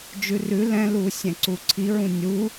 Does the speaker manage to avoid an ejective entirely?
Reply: yes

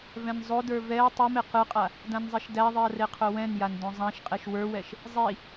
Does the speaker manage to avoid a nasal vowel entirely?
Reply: no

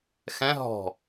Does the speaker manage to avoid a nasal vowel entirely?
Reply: no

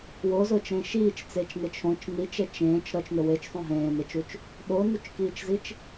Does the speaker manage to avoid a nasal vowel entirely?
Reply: no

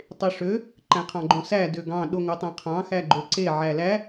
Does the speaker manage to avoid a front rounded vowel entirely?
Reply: no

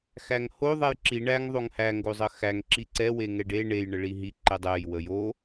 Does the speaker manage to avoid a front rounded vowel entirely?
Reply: yes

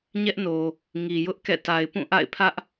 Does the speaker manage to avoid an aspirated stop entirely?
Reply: no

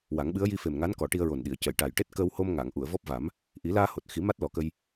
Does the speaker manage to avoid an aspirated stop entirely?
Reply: yes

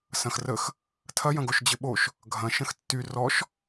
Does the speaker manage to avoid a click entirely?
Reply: yes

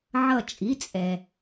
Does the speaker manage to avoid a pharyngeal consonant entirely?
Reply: no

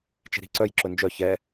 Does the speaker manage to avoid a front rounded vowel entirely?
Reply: no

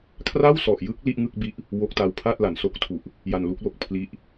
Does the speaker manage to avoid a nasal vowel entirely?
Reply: yes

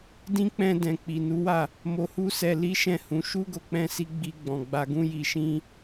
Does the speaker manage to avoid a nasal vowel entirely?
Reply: no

